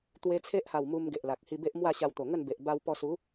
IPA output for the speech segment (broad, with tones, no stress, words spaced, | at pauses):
t̪we˧t͡sʰe˦ʔha˨˩w mu˧m ɡe˨ʔla˨k̚ hi˧be˦ʔmwa˥˧ ɕa˧wt̪o˨˩ ŋə˥˧nbe˨ʔ ba˧wpɔ˧su˨˦